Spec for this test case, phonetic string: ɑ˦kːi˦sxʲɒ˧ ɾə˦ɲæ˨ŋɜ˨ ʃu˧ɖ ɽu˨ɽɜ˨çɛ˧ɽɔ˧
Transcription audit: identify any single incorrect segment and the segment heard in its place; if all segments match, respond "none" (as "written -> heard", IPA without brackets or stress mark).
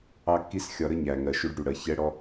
none